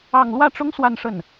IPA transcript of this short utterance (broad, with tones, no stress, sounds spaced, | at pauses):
ɑ˥˧ ŋ l w ä˥˩ ʈ͡ʂ ʊ˥ ŋ s w a˥˧ n ʂ ə˥˩ n